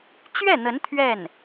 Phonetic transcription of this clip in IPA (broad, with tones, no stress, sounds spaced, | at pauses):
t͡ɕ ɥ ɛ˥˩ n̪ ə˧˥ n t̪ʰ ɥ ɛ˥˩ n